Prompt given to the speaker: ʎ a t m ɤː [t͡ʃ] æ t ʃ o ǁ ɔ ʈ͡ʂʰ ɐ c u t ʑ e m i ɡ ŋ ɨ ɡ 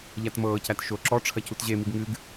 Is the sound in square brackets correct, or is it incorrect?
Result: incorrect